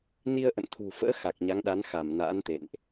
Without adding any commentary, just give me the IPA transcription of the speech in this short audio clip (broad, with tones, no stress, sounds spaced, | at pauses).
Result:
n i˧ ə̯ ʔ ə̰˧˨ n t̪ʰ ṳ˨˩ f ə̰ː˧˥ x a˨˩ k̚ ɲ a˨˦ ŋ ɗ a˨˦ n x a˧˩ m n a̰ː˧˥ n t̪ ḛ˧˨ n ʔ